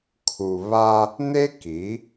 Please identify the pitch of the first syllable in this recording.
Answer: low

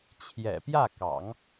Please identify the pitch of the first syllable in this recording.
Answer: low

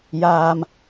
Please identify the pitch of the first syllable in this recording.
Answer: low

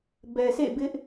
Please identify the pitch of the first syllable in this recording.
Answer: low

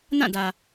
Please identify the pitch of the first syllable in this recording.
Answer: falling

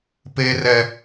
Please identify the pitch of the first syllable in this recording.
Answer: high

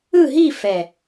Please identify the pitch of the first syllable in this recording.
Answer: falling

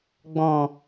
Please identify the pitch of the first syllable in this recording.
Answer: low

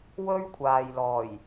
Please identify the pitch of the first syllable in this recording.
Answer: high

